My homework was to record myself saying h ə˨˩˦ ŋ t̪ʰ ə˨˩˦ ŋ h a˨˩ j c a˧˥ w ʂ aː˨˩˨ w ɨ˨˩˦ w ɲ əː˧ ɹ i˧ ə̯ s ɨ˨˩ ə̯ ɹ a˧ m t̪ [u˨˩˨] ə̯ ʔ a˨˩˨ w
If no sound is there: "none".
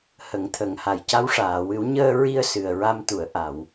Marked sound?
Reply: u˨˩˨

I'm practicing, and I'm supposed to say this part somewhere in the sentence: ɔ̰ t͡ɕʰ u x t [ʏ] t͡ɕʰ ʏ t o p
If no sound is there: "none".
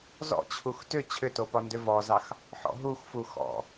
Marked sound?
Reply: ʏ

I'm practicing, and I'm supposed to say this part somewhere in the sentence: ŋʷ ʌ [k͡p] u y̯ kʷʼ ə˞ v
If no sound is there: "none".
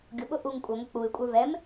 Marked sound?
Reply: k͡p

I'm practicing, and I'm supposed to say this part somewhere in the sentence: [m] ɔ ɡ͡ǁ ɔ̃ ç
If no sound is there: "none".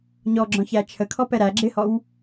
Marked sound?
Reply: ɲ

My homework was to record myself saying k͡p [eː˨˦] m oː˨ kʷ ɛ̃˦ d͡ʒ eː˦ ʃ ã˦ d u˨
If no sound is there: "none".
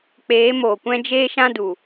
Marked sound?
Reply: eː˨˦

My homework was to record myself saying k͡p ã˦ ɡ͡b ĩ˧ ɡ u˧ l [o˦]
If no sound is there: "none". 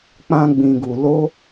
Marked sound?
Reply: o˦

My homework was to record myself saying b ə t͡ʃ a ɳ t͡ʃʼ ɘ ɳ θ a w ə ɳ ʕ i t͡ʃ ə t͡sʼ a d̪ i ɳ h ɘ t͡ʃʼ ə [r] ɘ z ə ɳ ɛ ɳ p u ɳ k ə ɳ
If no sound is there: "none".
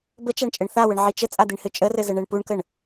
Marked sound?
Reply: r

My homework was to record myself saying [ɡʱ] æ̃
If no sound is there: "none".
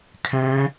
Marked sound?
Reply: kʰ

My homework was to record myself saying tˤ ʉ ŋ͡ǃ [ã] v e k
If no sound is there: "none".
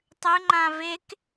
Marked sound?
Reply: ã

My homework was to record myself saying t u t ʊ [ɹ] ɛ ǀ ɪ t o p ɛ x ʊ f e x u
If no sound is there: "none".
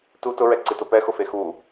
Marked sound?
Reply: ɹ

